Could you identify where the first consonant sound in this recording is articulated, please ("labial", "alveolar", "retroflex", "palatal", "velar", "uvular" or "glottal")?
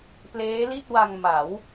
labial